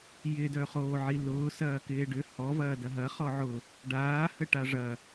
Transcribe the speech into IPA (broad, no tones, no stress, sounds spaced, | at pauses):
j ɪ d œ χ oː ʕ i l ʊː s ɐː k ɪː ɖ ʏ h ɔ v ɐː d ɐ ɦ ɐ χ ɔ ʕ ʊ | ɖ aː h ə ʈ a ʐ ɐ